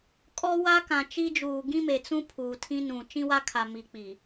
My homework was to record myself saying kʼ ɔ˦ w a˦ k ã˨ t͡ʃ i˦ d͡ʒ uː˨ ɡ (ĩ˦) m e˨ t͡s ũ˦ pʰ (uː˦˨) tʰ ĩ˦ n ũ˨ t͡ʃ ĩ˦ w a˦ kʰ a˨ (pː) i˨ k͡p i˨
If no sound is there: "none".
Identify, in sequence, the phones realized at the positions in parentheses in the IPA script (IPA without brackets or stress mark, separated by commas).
ĩ˦, uː˨, m